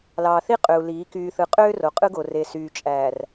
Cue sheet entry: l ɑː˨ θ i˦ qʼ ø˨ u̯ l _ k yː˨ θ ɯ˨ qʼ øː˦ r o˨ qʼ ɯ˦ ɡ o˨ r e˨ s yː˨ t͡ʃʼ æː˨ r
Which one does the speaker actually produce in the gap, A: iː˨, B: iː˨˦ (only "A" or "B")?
B